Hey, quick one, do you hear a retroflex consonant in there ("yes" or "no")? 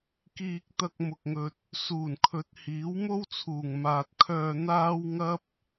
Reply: no